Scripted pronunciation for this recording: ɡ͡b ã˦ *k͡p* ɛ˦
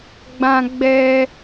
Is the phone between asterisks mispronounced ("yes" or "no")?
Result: yes